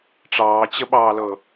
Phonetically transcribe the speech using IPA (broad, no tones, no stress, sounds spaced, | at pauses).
ʈ͡ʂ ɑː t͡ɕ ə ɓ ɑː l ɤ